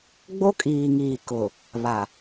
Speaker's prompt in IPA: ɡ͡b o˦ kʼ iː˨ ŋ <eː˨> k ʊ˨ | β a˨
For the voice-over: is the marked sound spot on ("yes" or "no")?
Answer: no